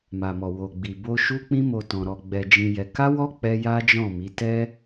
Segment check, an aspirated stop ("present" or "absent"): absent